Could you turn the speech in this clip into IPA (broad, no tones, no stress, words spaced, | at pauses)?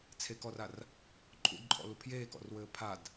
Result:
t͡sʰekɔrar | ǃʼṵdǃʼɔ̰lu pʰjeːkɔ̰rwɘː pʰad